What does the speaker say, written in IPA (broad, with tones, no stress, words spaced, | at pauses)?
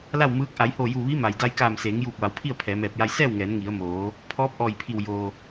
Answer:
la˥˨wmɯː˧˥k̚ ʔa˩˧jhoː˧˩juː˧˩ ʋi˧˥ma˩jda˧j kaː˧˩mseː˩˧ŋjuː˧˩k̚ʋa˩˧w pʰi˥˨ə̯pʰɛː˩˧mɛː˧˩p̚ ja˧jsɛː˥˨wŋɛː˩˧n ŋi˩˧ə̯moː˩˧ | pʰɔː˧˥p̚ʔɔː˧˩jpʰi˧˩w joː˩